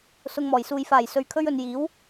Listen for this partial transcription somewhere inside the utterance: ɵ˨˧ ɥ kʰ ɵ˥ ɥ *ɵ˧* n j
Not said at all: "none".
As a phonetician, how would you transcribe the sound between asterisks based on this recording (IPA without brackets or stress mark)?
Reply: ɵ˧